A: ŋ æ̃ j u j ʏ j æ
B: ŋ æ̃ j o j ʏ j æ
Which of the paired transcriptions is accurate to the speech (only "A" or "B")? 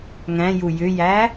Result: A